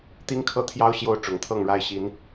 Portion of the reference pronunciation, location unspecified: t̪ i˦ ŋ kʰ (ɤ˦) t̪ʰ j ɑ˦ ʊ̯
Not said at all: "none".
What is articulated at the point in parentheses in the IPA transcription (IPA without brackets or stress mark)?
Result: ɤ˦